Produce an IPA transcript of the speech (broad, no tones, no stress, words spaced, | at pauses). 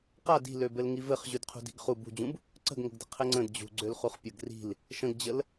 qa di̤lø bɘlŋivɘχ ʑʉdqʰṳdi̤ɡχu bṳd͡ʑũb | ǀə̤ɡŋə̤ɡdə̤ qʰɘŋ͡ǀə̃d d͡ʑṳɡ͡ǀøl χuχpʲəɡ ri̤l | ʃə̃ɡd͡ʑəl